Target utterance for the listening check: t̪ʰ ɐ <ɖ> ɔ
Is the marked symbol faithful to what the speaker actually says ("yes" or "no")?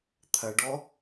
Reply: yes